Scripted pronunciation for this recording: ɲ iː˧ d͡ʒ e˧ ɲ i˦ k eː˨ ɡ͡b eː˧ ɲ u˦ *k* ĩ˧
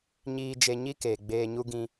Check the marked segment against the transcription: incorrect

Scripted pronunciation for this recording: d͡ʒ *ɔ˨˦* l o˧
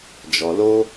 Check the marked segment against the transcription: incorrect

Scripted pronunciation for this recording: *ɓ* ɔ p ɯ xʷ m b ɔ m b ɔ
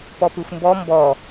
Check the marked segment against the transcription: incorrect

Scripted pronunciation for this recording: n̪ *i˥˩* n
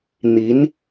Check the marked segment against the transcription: incorrect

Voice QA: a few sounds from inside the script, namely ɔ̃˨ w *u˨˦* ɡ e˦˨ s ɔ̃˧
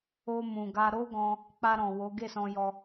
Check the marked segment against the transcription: incorrect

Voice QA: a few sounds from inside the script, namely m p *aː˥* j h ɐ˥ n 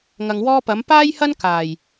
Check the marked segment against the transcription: correct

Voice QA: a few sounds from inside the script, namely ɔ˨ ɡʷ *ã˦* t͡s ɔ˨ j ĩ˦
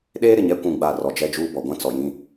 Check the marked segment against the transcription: correct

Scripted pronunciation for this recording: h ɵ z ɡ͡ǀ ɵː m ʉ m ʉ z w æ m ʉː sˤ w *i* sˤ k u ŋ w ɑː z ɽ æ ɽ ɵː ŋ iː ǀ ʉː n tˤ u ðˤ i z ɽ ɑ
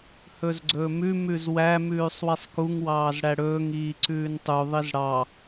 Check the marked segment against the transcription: correct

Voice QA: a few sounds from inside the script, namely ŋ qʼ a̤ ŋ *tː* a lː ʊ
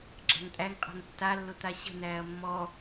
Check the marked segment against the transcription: correct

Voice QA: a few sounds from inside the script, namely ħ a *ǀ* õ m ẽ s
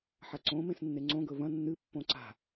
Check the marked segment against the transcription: correct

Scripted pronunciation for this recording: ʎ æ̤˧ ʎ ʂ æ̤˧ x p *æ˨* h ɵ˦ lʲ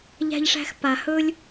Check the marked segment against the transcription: incorrect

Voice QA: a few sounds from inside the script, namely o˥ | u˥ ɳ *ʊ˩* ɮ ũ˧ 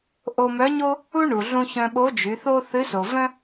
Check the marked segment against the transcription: incorrect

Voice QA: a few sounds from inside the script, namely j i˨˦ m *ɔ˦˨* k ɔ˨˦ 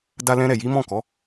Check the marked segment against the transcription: incorrect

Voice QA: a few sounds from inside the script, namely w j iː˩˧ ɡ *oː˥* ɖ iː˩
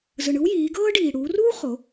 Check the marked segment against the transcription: incorrect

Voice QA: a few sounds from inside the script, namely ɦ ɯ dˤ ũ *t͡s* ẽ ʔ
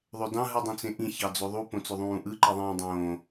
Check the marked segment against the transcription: correct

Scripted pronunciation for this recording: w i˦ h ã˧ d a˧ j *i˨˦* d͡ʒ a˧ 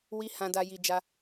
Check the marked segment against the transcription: incorrect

